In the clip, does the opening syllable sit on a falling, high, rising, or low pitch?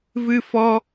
high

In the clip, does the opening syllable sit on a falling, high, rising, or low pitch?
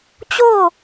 falling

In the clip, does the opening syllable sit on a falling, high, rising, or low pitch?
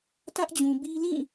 high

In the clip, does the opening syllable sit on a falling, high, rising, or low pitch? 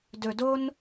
low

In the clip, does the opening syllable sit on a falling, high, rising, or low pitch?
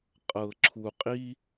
low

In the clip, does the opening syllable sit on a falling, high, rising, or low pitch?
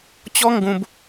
high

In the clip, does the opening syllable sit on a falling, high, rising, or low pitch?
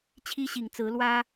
high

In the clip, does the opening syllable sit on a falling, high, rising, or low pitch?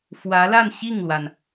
rising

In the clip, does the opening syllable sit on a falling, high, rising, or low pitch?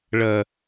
low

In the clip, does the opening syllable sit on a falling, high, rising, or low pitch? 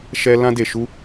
high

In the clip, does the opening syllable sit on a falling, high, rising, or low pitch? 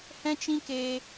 high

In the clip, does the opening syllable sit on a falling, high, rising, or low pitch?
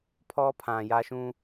high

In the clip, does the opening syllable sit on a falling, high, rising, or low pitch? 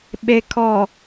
low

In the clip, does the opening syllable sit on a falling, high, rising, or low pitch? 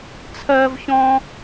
high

